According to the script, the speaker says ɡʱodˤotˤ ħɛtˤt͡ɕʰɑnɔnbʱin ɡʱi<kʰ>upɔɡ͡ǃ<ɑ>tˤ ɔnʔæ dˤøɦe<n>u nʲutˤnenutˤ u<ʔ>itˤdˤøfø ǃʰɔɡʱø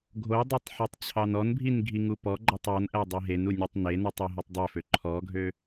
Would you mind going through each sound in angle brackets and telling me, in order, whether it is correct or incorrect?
incorrect: ŋ, correct, correct, incorrect: ɦ

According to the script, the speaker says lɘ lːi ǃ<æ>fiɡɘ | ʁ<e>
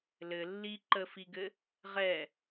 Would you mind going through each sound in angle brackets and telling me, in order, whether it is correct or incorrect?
incorrect: ə, incorrect: ɛ

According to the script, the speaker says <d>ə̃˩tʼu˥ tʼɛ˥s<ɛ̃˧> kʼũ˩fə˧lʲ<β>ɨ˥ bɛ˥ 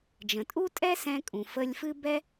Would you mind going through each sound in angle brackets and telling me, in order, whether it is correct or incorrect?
incorrect: d͡ʒ, correct, incorrect: f

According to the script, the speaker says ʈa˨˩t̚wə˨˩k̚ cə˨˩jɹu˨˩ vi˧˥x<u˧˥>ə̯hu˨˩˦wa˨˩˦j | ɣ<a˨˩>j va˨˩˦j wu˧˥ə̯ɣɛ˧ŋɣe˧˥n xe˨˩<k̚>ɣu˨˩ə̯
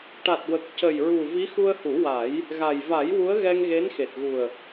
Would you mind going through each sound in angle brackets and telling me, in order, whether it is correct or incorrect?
incorrect: u˧, correct, incorrect: t̚

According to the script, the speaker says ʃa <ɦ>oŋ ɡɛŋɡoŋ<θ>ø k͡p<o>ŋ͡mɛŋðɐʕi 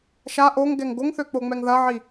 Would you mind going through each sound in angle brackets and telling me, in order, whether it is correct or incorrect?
incorrect: ʔ, correct, correct

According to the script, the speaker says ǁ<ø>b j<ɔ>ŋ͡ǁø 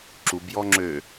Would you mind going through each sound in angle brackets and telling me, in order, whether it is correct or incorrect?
incorrect: u, correct

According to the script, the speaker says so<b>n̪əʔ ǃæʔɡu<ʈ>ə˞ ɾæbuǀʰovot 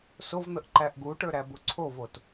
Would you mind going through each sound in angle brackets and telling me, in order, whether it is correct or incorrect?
incorrect: v, correct

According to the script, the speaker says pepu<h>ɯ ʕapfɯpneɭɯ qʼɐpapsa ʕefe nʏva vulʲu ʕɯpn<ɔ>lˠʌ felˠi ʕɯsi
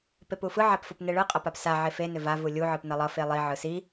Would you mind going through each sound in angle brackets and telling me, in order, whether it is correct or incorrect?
incorrect: f, incorrect: ʌ

